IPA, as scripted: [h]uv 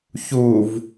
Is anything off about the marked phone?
yes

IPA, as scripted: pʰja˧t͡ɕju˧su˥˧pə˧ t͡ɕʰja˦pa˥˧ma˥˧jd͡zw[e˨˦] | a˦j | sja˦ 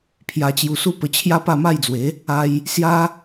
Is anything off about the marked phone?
no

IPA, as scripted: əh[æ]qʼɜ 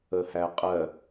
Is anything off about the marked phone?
no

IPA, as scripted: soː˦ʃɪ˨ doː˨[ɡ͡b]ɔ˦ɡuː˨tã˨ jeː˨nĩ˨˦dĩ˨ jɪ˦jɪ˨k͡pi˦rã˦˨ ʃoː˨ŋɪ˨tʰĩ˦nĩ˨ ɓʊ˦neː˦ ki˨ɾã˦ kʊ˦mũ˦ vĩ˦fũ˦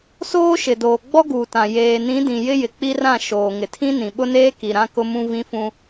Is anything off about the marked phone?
no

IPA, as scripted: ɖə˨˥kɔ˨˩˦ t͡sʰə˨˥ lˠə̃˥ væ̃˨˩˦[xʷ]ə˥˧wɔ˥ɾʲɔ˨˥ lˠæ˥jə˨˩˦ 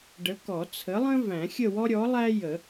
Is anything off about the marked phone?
yes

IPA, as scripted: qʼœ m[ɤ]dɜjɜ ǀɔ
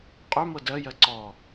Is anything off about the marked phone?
no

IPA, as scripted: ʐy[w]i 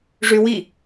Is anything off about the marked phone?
no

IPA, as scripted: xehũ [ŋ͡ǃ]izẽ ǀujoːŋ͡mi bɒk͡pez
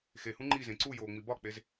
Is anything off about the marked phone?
no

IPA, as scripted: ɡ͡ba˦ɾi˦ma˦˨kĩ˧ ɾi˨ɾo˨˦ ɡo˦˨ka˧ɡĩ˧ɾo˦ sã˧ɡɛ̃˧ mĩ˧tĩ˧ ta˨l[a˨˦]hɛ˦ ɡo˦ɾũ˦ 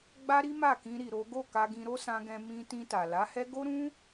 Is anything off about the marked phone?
no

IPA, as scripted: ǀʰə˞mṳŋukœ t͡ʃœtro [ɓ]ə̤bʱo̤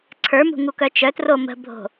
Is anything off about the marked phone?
yes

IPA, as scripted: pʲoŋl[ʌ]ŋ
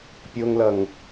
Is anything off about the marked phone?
no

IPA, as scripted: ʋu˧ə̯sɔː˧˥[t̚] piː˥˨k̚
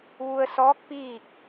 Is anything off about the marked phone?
yes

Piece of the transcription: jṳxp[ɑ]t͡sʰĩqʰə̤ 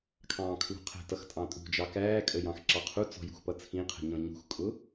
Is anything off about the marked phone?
yes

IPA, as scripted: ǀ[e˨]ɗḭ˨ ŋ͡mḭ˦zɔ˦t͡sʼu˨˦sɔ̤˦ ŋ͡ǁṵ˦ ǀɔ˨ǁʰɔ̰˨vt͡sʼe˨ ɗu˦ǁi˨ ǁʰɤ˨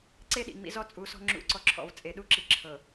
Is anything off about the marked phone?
yes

